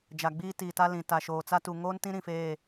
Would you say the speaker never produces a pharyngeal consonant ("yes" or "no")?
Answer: yes